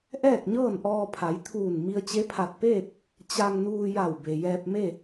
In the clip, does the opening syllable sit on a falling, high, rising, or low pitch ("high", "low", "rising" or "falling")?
falling